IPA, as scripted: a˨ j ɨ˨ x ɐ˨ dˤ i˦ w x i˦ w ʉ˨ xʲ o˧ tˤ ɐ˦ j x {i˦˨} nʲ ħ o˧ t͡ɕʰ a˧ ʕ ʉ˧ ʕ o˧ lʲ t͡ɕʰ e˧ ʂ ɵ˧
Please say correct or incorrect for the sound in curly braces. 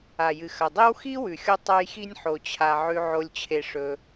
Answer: incorrect